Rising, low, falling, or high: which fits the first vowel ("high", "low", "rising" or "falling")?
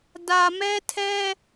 low